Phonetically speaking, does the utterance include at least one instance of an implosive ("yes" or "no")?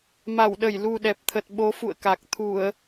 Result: yes